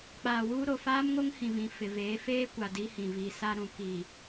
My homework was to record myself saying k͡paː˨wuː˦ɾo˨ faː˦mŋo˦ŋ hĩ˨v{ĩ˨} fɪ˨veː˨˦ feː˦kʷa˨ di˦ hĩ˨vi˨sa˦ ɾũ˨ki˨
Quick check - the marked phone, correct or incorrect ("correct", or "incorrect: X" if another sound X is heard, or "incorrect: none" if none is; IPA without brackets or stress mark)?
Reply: correct